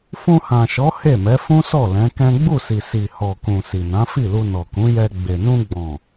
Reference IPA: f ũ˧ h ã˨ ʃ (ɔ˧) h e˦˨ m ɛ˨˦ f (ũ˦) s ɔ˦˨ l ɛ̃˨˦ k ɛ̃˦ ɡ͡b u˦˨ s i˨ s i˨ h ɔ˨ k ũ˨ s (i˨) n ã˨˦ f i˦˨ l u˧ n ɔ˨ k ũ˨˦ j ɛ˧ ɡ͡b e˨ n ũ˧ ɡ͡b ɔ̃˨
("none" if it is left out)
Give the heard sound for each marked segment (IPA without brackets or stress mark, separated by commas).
ɔ˨˦, ũ˦, i˨